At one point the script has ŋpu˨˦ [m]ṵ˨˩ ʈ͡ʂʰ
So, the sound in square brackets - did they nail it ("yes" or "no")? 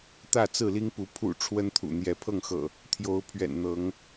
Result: no